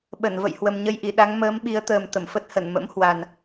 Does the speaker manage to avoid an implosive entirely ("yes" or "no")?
no